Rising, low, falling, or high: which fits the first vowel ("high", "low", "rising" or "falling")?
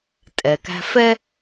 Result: low